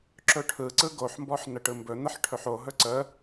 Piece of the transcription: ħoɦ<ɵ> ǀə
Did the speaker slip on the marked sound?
no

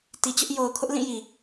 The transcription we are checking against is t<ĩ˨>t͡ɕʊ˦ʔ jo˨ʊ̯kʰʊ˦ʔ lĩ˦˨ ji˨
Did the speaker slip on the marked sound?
yes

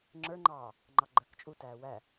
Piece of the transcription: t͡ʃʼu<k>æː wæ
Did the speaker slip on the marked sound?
yes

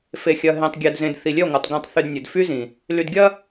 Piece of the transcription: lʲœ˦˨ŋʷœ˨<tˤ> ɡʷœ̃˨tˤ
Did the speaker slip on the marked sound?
no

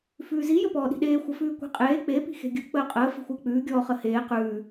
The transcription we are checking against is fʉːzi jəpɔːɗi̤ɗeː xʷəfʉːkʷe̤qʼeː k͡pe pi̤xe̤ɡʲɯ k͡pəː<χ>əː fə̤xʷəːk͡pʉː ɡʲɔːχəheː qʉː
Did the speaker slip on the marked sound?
yes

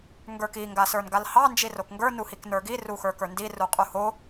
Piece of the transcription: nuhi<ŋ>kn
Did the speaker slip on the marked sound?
yes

